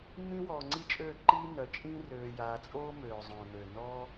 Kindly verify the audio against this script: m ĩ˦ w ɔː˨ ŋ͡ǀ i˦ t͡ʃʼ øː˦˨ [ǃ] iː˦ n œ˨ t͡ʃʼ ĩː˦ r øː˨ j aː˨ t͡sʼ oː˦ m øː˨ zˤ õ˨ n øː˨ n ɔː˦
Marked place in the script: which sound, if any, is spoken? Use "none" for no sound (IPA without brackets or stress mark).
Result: ǃ